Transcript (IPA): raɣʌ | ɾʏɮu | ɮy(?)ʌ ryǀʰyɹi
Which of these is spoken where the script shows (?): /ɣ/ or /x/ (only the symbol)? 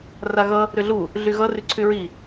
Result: ɣ